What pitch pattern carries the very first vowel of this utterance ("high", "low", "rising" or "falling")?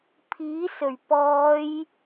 rising